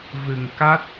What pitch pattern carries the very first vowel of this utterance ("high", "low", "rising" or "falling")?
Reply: low